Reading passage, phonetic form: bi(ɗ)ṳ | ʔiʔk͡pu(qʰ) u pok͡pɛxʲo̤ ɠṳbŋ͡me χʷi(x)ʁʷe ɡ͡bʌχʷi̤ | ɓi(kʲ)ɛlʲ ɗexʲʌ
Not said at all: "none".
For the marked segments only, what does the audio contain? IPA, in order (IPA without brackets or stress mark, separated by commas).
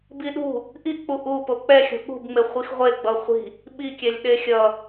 ɗ, ʔ, x, kʲ